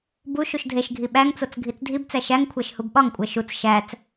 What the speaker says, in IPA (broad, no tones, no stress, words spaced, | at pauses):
bu ʃuʃdʱeʃɡʱi ɓæŋt͡sot͡s ɡʱit͡sdʱibt͡sæ ʃæŋkʷʰæʃ hubɓɒŋkʷʼæ ʃut͡s ʃæt͡s